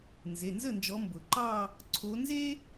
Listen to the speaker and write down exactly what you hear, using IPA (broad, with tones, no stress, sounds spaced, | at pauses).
n z e˩˧˩ n z ə˥˩ n d͡ʒ ɔ˨˦ m b ʊ˩ ǃ ɑ˥˧ | ǀʰ o˨˦ n z e˥